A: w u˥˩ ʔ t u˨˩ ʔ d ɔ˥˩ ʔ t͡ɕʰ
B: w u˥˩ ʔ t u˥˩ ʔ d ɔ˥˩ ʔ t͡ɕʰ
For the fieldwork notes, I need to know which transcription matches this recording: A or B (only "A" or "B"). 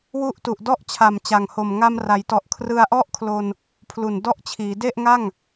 A